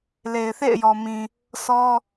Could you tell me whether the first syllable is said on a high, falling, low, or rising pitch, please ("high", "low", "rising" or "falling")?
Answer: low